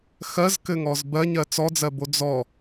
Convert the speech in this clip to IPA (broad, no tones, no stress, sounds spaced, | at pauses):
x ɜ z k ɘ ŋ ɔ z b ɜ ɲ ɜ t͡s ɔ d͡z ɜ b o d͡z ɔ